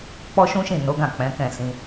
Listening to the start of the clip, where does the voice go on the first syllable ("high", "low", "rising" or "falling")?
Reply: high